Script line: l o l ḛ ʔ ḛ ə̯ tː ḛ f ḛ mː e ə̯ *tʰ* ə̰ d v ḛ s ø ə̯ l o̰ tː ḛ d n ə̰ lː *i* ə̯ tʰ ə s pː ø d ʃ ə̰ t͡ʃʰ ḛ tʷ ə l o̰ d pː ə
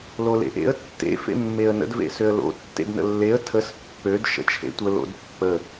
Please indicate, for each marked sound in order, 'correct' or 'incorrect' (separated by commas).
incorrect, incorrect